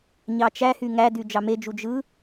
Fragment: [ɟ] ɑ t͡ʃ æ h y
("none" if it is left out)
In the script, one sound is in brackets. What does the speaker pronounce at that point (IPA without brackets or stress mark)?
ɲ